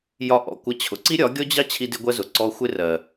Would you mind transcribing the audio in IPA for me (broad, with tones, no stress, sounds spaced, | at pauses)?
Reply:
j ɒ˧ ʔ ɔ̰˨ kʷ ʌ˧ t͡ɕʰ ʊ˨ ǀ i˦ ɾʲ ɒ˨˦ ɡʲ ɔ˦ d͡ʑ ɑ˦ t͡ɕʰ i˦ d ɪ˦ ɡʷ ɜ˦ z ʊ˨ ǀ ɔ˧ xʷ ɪ˦ r ɜ˨